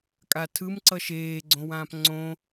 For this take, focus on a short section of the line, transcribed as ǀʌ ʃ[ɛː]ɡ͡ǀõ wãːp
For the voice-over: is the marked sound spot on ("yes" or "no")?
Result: no